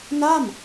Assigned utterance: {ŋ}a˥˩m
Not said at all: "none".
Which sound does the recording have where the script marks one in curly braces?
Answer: n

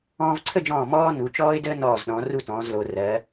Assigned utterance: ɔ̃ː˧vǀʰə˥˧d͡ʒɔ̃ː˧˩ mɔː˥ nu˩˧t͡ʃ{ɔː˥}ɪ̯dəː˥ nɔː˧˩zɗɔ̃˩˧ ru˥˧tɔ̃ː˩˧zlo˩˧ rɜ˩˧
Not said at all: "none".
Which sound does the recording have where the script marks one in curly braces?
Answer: ɔː˥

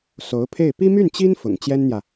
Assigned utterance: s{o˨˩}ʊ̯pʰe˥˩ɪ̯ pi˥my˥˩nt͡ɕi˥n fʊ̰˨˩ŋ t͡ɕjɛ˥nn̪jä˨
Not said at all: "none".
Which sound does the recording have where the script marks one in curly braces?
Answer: o˧˥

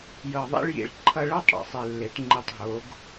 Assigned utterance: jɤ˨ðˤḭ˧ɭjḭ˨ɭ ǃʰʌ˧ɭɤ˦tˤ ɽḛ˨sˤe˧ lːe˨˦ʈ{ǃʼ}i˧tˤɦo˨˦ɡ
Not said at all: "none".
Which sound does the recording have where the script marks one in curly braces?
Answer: ŋ͡ǃ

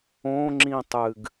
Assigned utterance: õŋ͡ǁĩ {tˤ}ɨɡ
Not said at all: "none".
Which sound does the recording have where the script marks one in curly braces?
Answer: tˤ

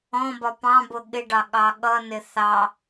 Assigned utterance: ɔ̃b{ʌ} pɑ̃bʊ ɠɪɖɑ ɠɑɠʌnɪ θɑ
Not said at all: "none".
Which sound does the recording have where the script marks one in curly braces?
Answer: ɒ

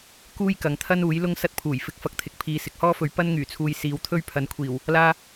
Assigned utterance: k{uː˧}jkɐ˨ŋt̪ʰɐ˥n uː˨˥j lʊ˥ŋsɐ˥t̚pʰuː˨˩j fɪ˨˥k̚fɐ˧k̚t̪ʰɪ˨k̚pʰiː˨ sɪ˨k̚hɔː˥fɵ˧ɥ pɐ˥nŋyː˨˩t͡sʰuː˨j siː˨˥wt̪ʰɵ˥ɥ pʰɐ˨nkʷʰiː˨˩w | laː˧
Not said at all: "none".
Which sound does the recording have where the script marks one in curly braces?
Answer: uː˥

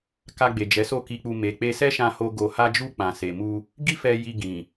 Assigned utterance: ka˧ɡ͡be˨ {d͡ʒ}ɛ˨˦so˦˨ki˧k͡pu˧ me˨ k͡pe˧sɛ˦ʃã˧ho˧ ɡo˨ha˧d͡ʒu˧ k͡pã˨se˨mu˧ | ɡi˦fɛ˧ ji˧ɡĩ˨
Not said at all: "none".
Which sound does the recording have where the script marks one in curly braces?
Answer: d͡ʒ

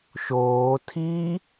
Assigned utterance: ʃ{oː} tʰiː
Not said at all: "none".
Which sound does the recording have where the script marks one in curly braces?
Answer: oː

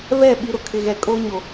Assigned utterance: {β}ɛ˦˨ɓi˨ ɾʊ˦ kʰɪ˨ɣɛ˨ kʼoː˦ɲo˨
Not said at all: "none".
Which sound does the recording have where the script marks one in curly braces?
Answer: β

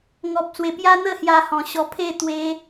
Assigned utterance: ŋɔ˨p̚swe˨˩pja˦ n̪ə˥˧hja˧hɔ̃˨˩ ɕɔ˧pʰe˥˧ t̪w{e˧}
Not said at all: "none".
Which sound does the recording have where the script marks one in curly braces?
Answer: e˧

